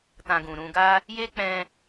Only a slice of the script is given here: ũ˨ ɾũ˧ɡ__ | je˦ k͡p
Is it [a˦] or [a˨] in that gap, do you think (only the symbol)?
a˦